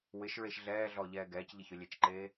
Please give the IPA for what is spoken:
w ɪ ʃ ɹ e ʃ ɮ ɛː ɮ ɔ ʎ ɛː ɡ ɛː c ʎ ɪ ç ʊ lʲ e t͡ʃ ǃ eː

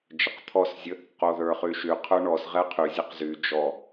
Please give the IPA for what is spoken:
d͡ʒ ə q t̪ʰ ɔ s zʲ ə | q o ð ə˞ χ y ʃ y qʰ ə˞ ɳ ɔ s ʁ ɛ qʰ y zʲ ə q z y d͡ʒ ɔ

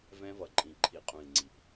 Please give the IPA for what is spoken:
v ɛ̃˦ v ʌ˨ ǃʼ ĩ˨ ǃʰ i˨ qʼ ũ˨ i̯ ŋ͡ǀ i˨ p

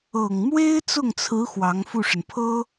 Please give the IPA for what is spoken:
ɤ˨˩ ŋ m w e˥ ɪ̯ t͡s ʊ˥˩ ŋ t͡sʰ ɹ̩˧˥ x w ɑ˧˥ ŋ f u˥˩ ʂ ə˩ n pʰ ɤ˥

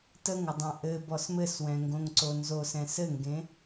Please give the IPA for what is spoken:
t ə ŋ ɘ dˤ ã ʔ ɘ b ɔ s m ɘ s w ɛ̃ ŋ ɡ õ ŋ ǀ o n z o s ɛ̃ s ɘ ŋ ɡ ẽ

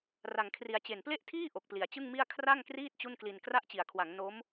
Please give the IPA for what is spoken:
r a˧ ŋ kʰ r i˧ a̯ t͡ɕ e˨˩ n p l e˥˩ ʔ tʰ iː˥˩ ʔ o˨˩ k̚ p l i˨˩ a̯ t͡ɕ ɯ˥˩ ŋ m i˥˩ a̯ kʰ r a˥˩ ŋ k r iː˥˩ t̚ t͡ɕ u˥˩ n k l i˧ n k r a˦˥ ʔ t͡ɕ i˩˦ a̯ kʰ w a˩˦ ŋ n o˦˥ m

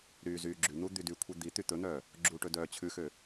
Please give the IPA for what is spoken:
ɾ yː z yː ɡ͡ǁ ʉ n̪ u d̪ y d y kʷʰ i d̪ i t̪ y t̪ ɵ n̪ œː | ɡ͡ǁ u ʈ ɵ d œː t͡ɕʰ ʉ x ø

